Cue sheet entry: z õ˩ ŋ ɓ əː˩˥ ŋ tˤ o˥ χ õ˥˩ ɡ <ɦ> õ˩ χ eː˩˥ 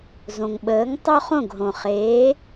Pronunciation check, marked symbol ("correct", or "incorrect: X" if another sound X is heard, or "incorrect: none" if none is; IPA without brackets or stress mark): correct